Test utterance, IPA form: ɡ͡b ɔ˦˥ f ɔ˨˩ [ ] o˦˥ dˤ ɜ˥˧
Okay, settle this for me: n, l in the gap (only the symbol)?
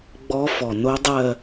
n